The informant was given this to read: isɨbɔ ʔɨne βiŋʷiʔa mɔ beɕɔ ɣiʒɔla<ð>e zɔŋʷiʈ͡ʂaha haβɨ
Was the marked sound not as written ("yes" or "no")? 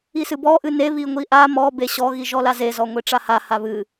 yes